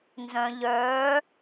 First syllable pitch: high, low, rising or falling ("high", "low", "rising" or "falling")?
low